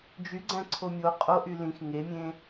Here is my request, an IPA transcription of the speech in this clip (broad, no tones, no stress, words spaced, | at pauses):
d͡ʒyɡ͡ǀæ̃ ǀʰomʲo qʼoʔy lĩx ŋemʲẽ